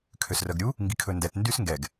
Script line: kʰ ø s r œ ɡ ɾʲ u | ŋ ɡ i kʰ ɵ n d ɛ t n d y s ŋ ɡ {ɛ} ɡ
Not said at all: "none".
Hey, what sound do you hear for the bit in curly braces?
ɛ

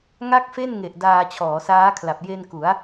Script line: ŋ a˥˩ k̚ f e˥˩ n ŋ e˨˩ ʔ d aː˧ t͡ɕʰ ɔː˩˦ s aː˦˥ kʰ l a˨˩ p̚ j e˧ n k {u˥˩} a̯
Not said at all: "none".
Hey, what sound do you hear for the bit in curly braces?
u˩˦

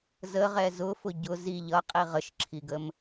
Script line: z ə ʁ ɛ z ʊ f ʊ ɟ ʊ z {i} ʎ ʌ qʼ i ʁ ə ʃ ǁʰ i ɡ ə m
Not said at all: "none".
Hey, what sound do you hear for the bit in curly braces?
i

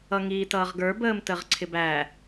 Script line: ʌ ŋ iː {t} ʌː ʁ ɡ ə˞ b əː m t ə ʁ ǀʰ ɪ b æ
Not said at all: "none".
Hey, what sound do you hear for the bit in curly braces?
t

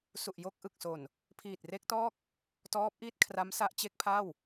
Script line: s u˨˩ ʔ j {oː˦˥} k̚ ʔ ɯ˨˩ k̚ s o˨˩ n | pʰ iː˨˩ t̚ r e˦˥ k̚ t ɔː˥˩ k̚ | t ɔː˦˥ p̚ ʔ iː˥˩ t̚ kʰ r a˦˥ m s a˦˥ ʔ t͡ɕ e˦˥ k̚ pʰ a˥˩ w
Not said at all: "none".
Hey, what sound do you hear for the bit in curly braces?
o˦˥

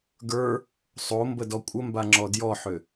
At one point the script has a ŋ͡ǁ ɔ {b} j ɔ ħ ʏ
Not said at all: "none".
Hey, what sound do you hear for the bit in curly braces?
d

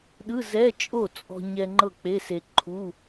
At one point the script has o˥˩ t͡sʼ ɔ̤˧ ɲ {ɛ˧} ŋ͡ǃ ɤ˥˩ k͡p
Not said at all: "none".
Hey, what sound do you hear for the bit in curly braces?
ɛ˧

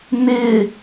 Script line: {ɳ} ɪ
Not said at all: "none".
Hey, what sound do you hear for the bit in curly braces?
n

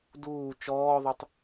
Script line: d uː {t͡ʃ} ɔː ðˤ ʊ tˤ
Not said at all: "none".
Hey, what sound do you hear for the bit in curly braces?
t͡ʃ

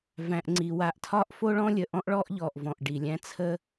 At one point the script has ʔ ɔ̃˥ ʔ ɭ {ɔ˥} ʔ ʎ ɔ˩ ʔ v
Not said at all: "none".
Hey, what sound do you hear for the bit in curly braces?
ɔ˥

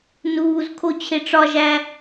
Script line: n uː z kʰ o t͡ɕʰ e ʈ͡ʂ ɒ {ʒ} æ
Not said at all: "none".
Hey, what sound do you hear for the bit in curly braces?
ʒ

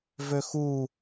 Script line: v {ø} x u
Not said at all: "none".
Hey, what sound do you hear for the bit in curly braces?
ø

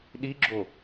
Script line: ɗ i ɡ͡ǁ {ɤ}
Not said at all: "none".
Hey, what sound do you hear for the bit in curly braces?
o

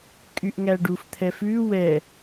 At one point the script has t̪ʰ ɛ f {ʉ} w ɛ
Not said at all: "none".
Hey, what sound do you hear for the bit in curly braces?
ʉ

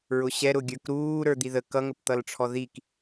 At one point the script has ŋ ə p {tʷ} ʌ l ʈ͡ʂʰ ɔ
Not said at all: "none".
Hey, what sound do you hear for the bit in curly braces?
t̪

